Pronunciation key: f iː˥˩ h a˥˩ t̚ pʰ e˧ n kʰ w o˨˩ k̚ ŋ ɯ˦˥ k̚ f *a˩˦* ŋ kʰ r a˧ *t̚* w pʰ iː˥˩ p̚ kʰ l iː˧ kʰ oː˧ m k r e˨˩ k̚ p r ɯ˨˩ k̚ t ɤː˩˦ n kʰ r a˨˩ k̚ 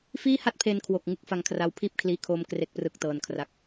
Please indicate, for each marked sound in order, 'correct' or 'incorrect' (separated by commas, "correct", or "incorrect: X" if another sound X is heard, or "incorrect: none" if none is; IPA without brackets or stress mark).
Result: incorrect: a˧, incorrect: none